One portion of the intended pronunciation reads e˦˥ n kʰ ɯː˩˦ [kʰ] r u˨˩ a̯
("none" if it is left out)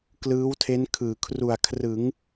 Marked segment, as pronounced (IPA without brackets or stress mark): kʰ